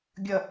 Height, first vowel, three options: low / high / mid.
mid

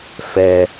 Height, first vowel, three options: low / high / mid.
mid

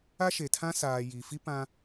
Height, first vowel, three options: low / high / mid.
low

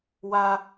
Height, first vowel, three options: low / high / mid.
low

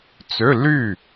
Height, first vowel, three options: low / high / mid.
mid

